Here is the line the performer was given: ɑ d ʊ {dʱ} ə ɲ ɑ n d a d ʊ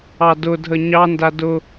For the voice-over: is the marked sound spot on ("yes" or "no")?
yes